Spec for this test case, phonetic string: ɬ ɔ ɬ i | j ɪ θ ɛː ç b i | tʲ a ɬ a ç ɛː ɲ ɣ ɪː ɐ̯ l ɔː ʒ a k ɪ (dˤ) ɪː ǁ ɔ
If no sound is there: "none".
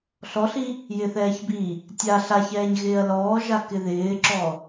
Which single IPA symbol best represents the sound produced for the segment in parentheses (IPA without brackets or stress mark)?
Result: ð